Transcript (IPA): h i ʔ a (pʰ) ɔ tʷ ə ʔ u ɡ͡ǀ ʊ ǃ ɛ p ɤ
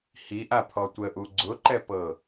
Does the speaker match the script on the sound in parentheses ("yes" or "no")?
yes